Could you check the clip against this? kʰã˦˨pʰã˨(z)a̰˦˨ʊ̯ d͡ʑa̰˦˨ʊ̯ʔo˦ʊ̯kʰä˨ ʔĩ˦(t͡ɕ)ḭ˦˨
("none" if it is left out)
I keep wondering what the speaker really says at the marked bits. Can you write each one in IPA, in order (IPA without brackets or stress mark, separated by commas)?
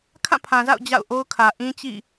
z, t͡ɕ